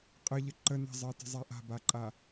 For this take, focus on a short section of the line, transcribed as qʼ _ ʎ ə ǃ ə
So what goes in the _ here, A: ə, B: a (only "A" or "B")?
A